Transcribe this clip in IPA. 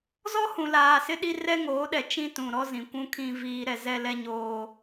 z ɔ˦ h ũ˨ l aː˨ s ɪ˦ ɗ i˦ r ɛ˦ ŋ oː˨˦ ɗ ɛ˨ t͡ʃ ĩ˦ t ũ˨ ɾ ɔ˦ z ĩ˨ kʷ ũ˦ kʰ ĩ˦ v iː˦ ɾ ɛ˦ z ɛ˦ l ɛ˦ ɲ oː˦

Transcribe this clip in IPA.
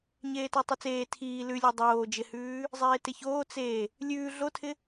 ɲ eː t æ tˤ ʉ t͡s eː tʰ iː l ʉ lʲ æ dˤ oː d͡ʒ ɪ h ʉː | zˤ eː t ɪ ç oː t͡s e | lʲ ʉː ɮ o tʰ ɪ

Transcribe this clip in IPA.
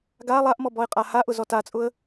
ɡ a lˠ a ʔ m ɔ b ɔ ɪ̯ qʼ a h a ʔ ʊ z ɔ t a t͡sʼ ʊ ə̯

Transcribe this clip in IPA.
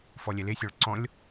f ɔ lʲ ɛ l e sʲ ɔ ɭ ǀ ɔ̃ lʲ

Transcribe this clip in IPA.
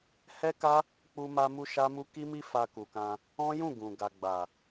h ɛ˦ k a˦ | k͡p u˧ m a˧ m u˧ ʃ a˦ m u˦ k i˦ m i˦ f a˧ k u˨ k ã˧ | ɔ̃˦ j ũ˦˨ ɡ ũ˨ ɡ a˨ ɡ͡b a˨

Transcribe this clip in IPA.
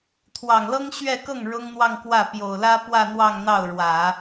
t̪ʰ w ɑ˨˩ ŋ l ɤ˥ ŋ ɕ ɥ ɛ˥˧ k ɤ˥˩ ŋ ɻ ʊ˥ ŋ n̪ w ɑ˥˧ ŋ k w ä˥˩ p j o˨˩ ʊ̯ l ä˥ p w ä˥˧ n̪ w ɑ˥˧ ŋ n̪ ɑ˥˩ ʊ̯ ɻ w ä˨˩˦

